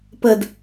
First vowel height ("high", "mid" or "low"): mid